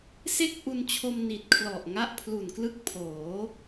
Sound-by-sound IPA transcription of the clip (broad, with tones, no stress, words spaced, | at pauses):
se˥˩k̚ʔu˧nt͡ɕʰo˧m ni˨˩t̚kʰlɔ˨˩ʔŋa˦˥ʔ pʰlu˨˩nklɯ˦˥k̚pʰoː˩˦